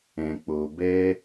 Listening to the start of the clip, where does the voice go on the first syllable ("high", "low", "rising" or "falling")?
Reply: low